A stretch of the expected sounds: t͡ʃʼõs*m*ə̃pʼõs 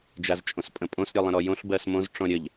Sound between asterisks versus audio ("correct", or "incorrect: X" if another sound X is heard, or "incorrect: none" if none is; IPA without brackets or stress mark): incorrect: pʼ